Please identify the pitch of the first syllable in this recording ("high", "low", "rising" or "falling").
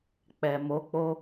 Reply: low